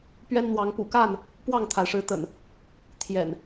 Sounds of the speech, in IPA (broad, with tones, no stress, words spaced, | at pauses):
pɥɛ˦nn̪wɑ˨˦ŋ pṵ˨˩ka˥˨n | pwɑ˥˨ŋt̪ʰa˩ɪ̯ʂɻ̩˨˦t̪ə̰˨˩n | t̪ʰjɛ̰˨˩n